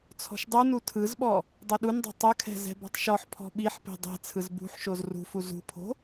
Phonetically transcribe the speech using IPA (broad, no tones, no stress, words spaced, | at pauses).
t͡sʰɔ̤ʃdˤunu tʰɯzɓɔ | dˤoɗundˤo̤ tˤɯkʰɛ̤ zɛ̤bɔ̤tˤʃɔħpʰɔ̤ ɓiħpe̤ dˤɛ̤ t͡sʰɯzbṳħʃoz rṳfu zṳpʰo̤